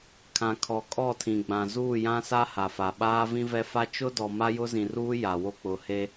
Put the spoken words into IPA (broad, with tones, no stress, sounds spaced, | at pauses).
kʰ ã˨ kʰ ɔ˨ kʼ ɔ˦˨ tʰ ĩ˨ ɡ͡b ã˨ z uː˦˨ j ã˦ s a˦ h a˨ f a˨ ɓ aː˦ v ĩ˦ v ɛ˦ f a˦ t͡ʃ ʊ˦ d ɔ˨ m a˦ j ʊ˦ z ĩ˨ r uː˦ j a˨ w o˦ k͡p ʊ˨˦ h e˦